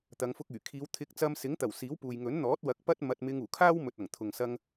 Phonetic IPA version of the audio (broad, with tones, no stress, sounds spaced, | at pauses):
t̪ ɐ˨˧ ŋ f ʊ˧ k̚ yː˨˩ kʰ iː˨˧ w t̪ʰ ɪ˨˥ k̚ t͡s ɐ˧ m s ɪ˨˥ ŋ t̪ ɐ˨˩ w s iː˨˥ w p uː˨ j ŋ ɵ˨˥ n n̪ ɔː˨˥ t̚ w ɐ˨˥ k̚ p ɐ˥ t̚ m ɐ˧ t̚ m ɪ˧ ŋ uː˨˩ kʰ aː˥ w m ɵ˨ t̚ ɐ˨˩ ŋ t̪ʰ ʊ˨ ŋ s ɐ˧ ŋ